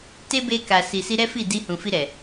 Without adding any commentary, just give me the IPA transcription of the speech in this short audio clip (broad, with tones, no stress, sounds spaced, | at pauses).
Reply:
t e˦ b e˧ k a˨ s i˨ s i˧ ɾ ɛ˦ f i˦˨ d i˧ h ũ˨ f i˧ ɾ ɛ˨